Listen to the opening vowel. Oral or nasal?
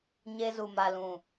oral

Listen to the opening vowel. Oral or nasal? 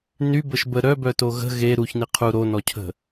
oral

